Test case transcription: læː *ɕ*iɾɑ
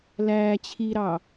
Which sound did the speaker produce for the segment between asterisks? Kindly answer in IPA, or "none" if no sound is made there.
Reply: t͡ɕʰ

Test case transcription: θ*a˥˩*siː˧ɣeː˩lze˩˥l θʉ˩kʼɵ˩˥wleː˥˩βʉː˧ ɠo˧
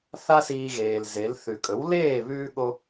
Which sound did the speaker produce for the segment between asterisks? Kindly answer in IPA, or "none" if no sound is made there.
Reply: a˥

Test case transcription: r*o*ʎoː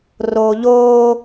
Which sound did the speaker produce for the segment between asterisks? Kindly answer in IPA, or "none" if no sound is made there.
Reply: oː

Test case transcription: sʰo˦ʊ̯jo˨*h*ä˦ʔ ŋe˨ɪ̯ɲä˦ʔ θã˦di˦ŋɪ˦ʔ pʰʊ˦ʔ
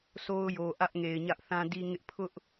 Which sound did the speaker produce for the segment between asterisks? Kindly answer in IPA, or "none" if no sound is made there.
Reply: ʔ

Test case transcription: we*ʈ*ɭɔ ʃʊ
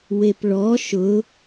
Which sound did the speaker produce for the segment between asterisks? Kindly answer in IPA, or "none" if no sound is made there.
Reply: p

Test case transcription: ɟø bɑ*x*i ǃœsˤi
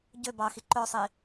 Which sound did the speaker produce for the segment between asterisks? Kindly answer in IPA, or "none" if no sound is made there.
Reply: x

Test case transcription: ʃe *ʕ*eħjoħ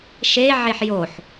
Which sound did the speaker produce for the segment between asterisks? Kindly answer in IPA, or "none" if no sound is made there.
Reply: ʕ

